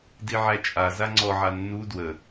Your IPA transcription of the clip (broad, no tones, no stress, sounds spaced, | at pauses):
d i ʕ æ t͡ʃʼ a z a ŋ͡ǀ ɔ ʕ a nː u d w ə